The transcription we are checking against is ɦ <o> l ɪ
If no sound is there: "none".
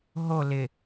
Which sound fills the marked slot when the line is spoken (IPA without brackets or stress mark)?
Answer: o